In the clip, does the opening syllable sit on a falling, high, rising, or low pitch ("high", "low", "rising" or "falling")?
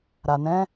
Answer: low